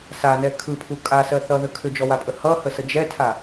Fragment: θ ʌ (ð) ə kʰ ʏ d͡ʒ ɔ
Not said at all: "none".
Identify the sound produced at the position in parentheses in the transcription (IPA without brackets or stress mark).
ð